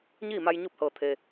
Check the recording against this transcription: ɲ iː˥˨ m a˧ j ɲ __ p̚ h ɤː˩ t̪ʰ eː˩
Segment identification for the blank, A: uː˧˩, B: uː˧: B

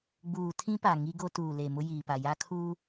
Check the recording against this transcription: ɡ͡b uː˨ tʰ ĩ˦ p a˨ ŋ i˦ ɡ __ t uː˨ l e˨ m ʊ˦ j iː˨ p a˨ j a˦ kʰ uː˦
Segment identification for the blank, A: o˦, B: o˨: A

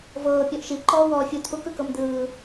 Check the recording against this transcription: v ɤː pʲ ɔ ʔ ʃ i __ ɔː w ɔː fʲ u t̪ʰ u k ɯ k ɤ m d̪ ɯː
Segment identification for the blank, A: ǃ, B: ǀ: A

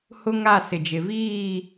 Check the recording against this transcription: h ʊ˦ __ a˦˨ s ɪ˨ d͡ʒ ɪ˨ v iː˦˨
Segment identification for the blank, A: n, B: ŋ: B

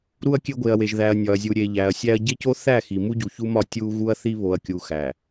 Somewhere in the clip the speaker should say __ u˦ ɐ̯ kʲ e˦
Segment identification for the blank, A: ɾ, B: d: A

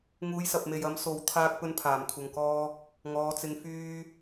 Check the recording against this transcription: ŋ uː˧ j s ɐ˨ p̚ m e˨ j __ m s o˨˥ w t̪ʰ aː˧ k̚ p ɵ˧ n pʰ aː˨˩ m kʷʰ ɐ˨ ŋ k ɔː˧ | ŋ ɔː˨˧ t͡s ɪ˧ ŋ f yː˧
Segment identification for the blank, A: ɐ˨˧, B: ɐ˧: B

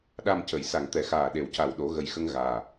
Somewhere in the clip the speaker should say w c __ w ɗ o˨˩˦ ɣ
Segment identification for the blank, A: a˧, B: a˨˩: B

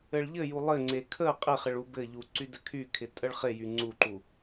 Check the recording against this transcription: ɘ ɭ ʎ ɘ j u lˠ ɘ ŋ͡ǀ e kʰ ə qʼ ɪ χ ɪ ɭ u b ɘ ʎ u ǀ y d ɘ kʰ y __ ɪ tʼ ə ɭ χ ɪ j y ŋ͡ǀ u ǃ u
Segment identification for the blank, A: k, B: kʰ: B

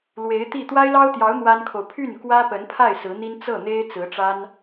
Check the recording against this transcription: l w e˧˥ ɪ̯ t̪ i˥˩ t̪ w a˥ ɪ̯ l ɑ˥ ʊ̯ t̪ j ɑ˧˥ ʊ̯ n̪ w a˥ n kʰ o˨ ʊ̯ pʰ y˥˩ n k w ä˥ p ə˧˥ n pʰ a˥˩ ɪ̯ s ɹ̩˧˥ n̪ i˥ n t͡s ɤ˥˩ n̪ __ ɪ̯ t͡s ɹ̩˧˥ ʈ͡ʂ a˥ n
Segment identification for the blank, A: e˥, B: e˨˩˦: A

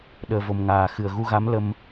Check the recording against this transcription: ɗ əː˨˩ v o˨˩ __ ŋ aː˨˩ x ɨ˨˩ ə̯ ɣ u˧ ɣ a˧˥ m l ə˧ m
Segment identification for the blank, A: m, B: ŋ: A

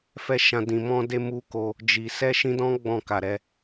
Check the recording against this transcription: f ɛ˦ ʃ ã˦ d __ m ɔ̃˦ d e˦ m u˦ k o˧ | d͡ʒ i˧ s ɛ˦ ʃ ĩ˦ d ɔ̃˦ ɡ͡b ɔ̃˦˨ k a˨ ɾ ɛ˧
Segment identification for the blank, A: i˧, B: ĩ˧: B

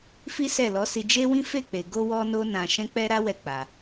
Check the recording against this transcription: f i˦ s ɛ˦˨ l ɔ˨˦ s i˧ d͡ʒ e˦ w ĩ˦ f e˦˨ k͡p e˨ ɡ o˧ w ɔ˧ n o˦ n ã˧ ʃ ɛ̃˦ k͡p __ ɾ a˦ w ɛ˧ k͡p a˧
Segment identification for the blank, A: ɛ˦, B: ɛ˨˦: A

